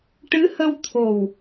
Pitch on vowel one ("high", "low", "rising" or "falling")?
rising